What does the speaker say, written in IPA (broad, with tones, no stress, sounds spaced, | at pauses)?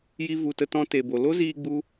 j i˧ v u˨ t ə˧ t ɔ̃˧ t e˨ b o˨ l o˦ z iː˧ ɡ͡b u˧